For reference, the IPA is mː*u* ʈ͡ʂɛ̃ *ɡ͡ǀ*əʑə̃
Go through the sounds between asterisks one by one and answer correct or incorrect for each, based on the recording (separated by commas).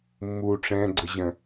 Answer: correct, correct